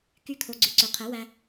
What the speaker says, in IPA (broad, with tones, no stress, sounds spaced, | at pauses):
k y˦˥ kʰ o˧ ɡ͡ǀ ʉ˧ ǀ ø˨˥ qʰ ɛ˨˥ w æ˧